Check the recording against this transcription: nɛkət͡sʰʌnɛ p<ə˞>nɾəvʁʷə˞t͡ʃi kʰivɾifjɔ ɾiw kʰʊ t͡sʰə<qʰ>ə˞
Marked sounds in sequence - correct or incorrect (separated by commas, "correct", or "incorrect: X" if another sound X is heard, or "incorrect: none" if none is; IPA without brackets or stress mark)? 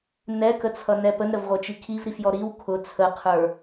incorrect: ə, correct